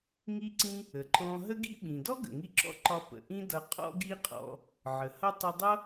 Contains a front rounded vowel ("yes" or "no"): no